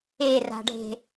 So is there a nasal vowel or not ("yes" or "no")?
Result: no